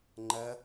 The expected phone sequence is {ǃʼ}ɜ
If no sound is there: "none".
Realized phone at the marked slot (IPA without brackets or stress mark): ŋ͡ǃ